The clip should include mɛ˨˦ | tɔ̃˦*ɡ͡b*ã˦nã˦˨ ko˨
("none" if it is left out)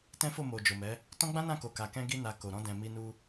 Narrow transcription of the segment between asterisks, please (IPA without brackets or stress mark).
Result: ɡ͡b